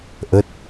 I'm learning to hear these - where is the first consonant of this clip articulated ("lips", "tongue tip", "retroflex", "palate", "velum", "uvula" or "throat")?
throat